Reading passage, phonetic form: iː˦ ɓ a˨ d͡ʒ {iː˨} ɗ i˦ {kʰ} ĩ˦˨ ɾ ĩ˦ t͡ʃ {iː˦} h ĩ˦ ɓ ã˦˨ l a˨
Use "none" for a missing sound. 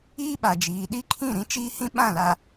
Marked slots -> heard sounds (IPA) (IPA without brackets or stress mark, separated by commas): iː˨, kʰ, iː˦